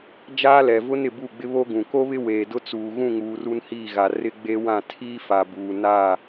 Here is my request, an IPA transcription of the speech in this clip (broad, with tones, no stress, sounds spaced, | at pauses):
d͡ʒ aː˦ l ɛ˨ v ʊ˦ n ɪ˨ b u˦˨ ɡ͡b ɪ˦ β o˦ ɡ ũ˨ k o˦ β ɪ˦ w eː˨ d ʊ˦ t͡s uː˨ ɣ ũ˦˨ ŋ uː˨ r u˦ n h iː˦˨ ɣ a˨ r ɪ˦ ɡ͡b e˦ w ã˦˨ tʰ iː˦ f a˨ b uː˨ n aː˦˨